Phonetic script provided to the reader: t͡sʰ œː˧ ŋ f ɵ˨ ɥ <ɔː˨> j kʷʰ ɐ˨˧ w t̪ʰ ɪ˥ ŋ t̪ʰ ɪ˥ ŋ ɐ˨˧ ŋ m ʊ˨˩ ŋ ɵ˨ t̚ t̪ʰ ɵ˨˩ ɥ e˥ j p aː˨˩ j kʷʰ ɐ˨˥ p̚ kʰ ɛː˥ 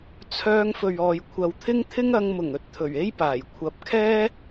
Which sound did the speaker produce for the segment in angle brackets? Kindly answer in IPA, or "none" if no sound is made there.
ɔː˨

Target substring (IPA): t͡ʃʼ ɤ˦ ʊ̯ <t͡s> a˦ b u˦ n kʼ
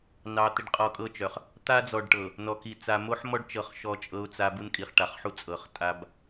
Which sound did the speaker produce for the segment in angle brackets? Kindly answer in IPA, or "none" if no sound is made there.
t͡s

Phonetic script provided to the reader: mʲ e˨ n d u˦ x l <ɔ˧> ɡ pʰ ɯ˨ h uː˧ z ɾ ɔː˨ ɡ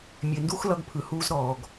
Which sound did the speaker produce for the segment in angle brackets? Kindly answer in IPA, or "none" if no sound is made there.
ʌ˧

